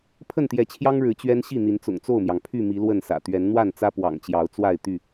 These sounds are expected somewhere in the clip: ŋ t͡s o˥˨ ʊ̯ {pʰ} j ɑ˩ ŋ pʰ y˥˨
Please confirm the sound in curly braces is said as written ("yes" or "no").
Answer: no